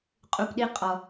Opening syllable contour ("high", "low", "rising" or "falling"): low